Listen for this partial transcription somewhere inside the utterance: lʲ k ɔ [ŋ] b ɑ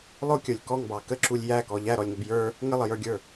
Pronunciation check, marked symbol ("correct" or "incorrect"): correct